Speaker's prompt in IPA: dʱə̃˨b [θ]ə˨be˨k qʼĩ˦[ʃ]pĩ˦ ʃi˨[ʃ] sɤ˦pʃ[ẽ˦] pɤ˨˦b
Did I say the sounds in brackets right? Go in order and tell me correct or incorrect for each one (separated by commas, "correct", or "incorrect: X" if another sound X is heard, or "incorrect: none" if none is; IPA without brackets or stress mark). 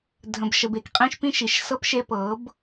incorrect: ʃ, correct, correct, incorrect: e˦